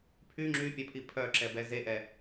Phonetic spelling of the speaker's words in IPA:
pʰy ŋ͡ǁypʲœpʰi pʰœǁɛbɛ zeʔɛ

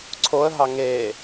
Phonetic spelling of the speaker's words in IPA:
ǀʰoə̯ɦɑ ŋeː

